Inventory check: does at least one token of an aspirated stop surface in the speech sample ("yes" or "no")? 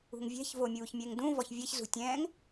no